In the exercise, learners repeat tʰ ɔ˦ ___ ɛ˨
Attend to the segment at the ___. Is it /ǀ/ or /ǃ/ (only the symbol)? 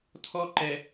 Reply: ǃ